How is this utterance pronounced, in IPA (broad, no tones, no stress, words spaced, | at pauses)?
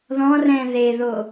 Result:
ðɔ̃ rɛ̃ðeðo